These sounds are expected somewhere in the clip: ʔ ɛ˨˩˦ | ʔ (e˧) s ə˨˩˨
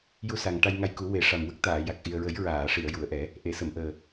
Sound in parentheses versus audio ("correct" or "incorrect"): incorrect